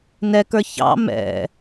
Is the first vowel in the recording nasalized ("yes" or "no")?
no